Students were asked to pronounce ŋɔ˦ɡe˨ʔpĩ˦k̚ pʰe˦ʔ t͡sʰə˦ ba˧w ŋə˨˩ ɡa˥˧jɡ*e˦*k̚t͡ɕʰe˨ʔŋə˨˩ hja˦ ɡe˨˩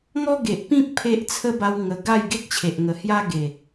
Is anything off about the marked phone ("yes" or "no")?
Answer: no